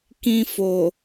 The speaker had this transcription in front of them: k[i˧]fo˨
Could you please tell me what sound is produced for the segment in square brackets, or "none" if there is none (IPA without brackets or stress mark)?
ĩ˧